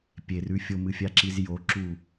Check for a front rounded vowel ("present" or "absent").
absent